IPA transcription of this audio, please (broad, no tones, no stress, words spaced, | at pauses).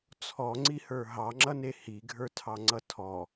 t͡sʰɔŋ͡ǀihə˞ ɦɑŋ͡ǁʌne hiɡʱə˞tʰɑŋ͡ǀʌ tʰɔ